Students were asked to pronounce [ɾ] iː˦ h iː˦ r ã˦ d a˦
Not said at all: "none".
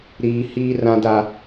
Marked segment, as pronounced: ɾ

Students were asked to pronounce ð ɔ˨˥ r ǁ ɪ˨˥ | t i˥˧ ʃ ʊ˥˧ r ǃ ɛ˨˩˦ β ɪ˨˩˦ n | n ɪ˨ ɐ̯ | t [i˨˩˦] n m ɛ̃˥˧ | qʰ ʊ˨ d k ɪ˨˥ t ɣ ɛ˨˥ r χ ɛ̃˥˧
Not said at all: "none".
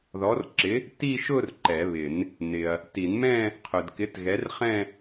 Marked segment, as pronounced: i˨˩˦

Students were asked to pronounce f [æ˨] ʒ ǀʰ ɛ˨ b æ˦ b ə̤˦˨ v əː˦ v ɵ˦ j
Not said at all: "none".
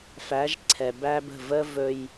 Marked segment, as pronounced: æ˨˦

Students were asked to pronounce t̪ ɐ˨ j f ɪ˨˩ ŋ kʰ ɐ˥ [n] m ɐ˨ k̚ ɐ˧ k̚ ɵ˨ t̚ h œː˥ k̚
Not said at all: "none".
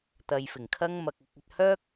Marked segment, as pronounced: ŋ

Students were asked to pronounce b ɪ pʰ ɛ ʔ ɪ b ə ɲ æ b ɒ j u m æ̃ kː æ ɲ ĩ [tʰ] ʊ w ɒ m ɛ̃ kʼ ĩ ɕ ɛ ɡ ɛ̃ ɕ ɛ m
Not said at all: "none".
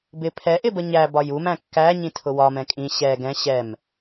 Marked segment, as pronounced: tʰ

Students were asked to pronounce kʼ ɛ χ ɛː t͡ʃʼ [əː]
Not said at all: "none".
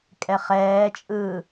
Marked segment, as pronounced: ɯː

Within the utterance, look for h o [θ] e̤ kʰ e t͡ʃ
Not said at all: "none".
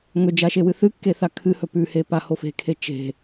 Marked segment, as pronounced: f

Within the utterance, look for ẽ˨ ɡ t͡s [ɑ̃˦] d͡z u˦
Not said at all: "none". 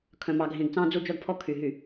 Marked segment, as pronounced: ɑ̃˦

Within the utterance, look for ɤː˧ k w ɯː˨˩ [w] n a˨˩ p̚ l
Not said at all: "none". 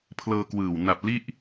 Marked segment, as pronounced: w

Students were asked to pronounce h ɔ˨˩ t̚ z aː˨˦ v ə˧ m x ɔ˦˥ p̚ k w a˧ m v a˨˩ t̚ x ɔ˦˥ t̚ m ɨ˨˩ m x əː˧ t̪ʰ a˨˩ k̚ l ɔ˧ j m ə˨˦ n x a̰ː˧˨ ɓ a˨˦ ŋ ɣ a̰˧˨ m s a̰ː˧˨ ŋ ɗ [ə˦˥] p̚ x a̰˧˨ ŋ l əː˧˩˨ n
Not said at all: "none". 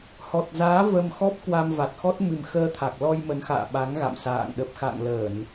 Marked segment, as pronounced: ə˨˩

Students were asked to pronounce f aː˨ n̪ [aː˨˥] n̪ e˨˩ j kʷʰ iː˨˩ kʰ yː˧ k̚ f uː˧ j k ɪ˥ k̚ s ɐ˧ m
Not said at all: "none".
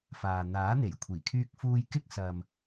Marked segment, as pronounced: aː˨˥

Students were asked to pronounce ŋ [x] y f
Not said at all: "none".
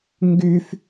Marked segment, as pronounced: ɡ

